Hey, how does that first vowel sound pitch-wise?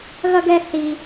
high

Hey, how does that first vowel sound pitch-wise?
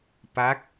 rising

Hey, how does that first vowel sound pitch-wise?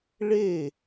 falling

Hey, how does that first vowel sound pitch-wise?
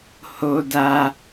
high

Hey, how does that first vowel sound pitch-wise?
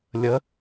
rising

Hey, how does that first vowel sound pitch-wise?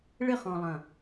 falling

